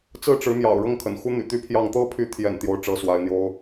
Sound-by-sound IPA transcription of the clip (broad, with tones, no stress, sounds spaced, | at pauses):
t͡s ɹ̩˥˩ ʈ͡ʂ ɻ̩˧˥ m j ɑ̰˨˩ ʊ̯ ɻ ɤ˥˩ ŋ kʰ ə̰˨˩ n x u˥ n̪ y̰˨˩ t̪ y˥ pʰ j ɑ˥˧ ŋ t̪ ɤ˥˩ pʰ y˧˥ t̪ʰ j ɛ̰˨˩ n t̪ j o˥˩ ʊ̯ ʈ͡ʂ ɤ˥ s w a˧˥ ɪ̯ n̪ j o˥ ʊ̯